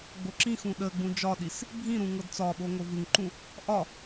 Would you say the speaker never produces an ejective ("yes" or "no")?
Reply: yes